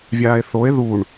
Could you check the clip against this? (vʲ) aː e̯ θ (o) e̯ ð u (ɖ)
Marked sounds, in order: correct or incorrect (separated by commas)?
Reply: correct, correct, incorrect